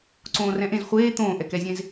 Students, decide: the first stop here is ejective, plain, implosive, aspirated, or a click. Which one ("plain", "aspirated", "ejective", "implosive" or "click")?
click